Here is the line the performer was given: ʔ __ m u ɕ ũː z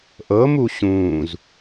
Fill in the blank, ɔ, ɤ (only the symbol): ɤ